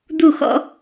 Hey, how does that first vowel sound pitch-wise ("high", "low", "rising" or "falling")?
falling